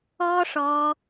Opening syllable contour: high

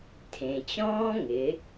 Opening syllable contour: low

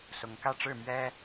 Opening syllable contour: rising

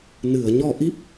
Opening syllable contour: low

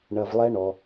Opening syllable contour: low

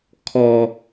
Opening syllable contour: low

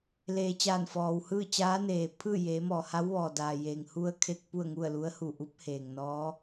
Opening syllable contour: low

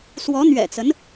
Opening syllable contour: rising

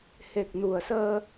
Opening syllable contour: low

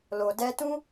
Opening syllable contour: low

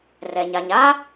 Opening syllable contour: low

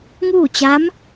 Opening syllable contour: falling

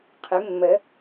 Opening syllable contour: rising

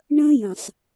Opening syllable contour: high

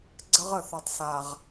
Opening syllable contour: high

